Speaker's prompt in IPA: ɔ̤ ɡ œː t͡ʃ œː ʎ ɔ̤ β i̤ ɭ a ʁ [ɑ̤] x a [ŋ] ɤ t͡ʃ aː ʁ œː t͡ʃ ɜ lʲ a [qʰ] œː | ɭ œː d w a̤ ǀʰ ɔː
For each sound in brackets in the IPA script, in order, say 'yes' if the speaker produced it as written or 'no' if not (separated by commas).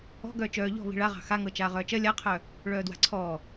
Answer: yes, yes, yes